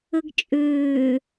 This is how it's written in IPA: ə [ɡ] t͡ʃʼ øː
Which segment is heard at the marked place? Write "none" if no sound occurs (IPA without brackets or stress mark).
ɡ